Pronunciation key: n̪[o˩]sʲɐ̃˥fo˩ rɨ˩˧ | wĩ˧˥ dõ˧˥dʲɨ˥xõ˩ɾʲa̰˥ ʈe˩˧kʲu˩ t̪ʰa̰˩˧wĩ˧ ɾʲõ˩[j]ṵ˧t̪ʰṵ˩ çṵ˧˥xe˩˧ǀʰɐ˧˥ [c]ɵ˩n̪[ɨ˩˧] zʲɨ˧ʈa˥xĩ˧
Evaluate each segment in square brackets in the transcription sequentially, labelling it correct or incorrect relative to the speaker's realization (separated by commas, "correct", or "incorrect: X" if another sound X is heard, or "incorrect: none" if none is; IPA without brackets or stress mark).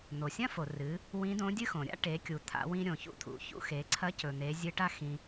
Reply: correct, incorrect: ç, correct, incorrect: e˩˧